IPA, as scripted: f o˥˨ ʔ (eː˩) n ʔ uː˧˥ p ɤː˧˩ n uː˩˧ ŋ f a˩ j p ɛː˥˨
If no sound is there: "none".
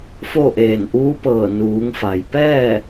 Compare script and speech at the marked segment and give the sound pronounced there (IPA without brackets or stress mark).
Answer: eː˧˩